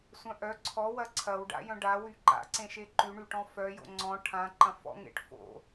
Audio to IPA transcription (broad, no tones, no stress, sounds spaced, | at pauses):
sʷ œ̃ ʔ œ ǀʰ ɔ w ɐ ǀʰ ɐ w ɖ a̰ j œ̃ ɖ a w y ǃ a̰ ǀ ẽ ʃ e ǃ y ɳ y ʈ ɔ̃ f œ j o̰ ŋ͡ǀ ɔ̃ ʈʰ ã ǃ ɐ̃ f ɔ̰ ŋ ḛ ʈ f o̰